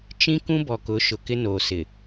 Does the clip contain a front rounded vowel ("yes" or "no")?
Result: no